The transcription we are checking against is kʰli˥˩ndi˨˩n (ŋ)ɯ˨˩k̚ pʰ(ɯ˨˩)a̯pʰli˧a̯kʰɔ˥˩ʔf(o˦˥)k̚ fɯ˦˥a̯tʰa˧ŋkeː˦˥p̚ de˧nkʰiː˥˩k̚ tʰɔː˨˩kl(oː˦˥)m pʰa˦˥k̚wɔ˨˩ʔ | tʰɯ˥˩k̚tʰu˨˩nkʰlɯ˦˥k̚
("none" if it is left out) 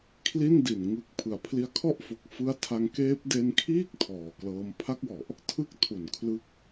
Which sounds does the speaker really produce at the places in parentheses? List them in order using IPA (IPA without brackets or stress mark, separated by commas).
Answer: ŋ, ɯ˩˦, o˨˩, ɤː˦˥